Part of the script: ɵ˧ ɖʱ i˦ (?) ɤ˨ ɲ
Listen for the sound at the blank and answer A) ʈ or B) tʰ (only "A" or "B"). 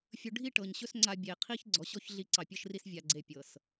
A